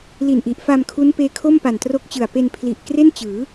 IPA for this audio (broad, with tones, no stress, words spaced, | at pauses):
li˨˩nʔi˨˩ʔfa˧m kʰu˦˥npeː˦˥kʰo˥˩mpa˨˩n tro˦˥k̚t͡ɕɯ˨˩a̯ pe˧n pʰli˨˩ʔkre˥˩nt͡ɕɯː˩˦